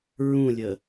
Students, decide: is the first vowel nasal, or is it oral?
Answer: nasal